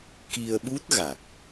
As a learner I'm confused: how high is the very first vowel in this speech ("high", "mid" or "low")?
high